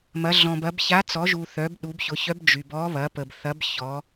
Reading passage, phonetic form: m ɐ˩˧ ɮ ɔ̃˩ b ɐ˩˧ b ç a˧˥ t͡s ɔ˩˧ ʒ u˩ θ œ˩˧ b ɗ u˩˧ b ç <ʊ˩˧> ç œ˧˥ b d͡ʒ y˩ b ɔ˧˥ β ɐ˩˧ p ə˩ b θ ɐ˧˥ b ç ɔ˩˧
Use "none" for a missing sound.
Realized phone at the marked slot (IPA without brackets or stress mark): ʊ˩˧